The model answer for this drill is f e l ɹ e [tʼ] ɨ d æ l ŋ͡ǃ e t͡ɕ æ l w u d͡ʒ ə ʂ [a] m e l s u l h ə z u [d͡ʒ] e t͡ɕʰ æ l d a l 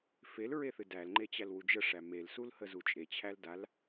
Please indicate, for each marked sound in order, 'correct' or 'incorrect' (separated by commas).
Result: incorrect, incorrect, incorrect